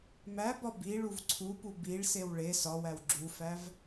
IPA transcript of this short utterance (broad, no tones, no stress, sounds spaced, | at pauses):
m æ b ɒ b i ɭ u v ǀʰ u p u b i ɭ s e w ɭ e s ɒ w æ w ɡ͡ǁ u f æ v